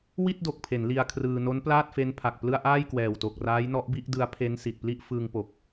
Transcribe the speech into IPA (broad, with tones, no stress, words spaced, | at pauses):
wi˥˩t̚do˨˩k̚pʰe˩˦n li˧a̯kʰrɯː˧ no˦˥nplaː˥˩t̚fe˦˥npʰa˨˩k̚ plɯ˥˩a̯ ʔaː˥˩jkwɛː˨˩wto˨˩k̚raː˦˥j nɔ˦˥ʔbi˥˩ʔdɯ˦˥a̯pʰe˦˥n si˨˩t̚pli˥˩ʔ fɯː˧ŋpo˨˩k̚